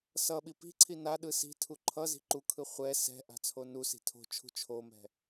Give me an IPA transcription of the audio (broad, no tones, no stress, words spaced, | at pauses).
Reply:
sʌɓi pi̤ǀʰi naɗɯ si̤tʰu ǃʰʌ zi̤ǃukʰɯ χʷɛ sɛ̤ʔa̤ t͡sʰonusi̤ tʰo̤t͡ʃʰṳ t͡ʃʰomɛ̤